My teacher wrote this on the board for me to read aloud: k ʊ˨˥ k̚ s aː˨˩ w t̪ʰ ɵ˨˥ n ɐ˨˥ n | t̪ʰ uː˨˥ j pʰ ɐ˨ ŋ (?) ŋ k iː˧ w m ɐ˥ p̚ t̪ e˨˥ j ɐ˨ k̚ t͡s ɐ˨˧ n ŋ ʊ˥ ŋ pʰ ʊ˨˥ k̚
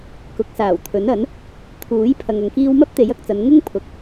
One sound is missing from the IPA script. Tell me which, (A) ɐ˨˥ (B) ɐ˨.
B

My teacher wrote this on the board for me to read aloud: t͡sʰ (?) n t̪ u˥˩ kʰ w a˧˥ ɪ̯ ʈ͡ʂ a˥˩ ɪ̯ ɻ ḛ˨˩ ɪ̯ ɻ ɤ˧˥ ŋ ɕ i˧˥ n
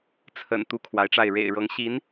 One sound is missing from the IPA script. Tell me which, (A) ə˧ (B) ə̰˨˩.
B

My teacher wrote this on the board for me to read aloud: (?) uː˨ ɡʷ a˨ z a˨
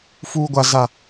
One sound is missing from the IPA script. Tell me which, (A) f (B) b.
A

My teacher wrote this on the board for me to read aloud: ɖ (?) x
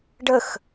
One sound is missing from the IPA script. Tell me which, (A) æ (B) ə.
B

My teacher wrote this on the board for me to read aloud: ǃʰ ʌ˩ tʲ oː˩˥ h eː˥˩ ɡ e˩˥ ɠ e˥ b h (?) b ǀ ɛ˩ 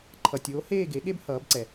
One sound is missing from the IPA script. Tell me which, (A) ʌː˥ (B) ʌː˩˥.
B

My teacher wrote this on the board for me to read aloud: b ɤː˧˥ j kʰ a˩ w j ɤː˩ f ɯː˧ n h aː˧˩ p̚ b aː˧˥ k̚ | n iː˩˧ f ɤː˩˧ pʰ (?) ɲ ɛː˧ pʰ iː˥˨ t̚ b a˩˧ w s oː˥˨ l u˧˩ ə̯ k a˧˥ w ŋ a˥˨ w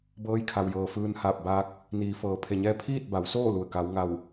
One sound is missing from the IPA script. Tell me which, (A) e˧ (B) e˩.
B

